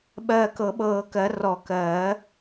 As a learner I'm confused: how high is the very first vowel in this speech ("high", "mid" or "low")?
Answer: mid